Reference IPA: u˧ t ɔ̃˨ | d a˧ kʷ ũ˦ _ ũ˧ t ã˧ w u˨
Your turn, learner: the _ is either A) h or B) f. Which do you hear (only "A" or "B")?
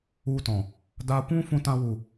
B